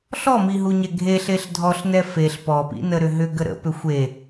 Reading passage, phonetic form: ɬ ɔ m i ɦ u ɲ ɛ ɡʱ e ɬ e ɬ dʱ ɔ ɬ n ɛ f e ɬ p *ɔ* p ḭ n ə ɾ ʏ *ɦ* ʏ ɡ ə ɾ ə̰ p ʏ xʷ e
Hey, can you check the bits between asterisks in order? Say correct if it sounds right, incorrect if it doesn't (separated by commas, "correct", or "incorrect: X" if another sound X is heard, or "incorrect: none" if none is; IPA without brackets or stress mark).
correct, correct